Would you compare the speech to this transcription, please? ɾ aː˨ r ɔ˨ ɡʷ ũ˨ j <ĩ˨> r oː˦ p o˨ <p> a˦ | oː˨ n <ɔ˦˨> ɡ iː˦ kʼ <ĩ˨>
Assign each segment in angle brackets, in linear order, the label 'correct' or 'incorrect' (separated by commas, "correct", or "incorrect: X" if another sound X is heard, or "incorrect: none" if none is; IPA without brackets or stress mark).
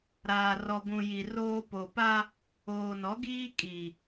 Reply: incorrect: i˨, correct, incorrect: ɔ˨˦, incorrect: i˨